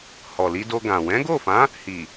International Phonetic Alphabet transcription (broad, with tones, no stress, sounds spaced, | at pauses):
h ɔ˨ l i˧ d o˧ ɡ ã˨ w ɛ̃˨˦ ɡ o˦˨ f ã˨˦ | h i˨